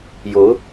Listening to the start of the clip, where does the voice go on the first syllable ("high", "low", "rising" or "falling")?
rising